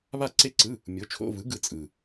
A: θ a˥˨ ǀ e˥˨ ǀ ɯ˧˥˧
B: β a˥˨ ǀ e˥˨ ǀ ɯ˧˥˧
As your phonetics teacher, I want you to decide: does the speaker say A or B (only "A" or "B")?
B